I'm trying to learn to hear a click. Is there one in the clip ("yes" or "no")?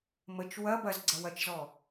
yes